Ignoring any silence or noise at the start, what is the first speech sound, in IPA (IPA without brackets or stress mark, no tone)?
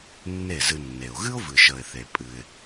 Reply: nː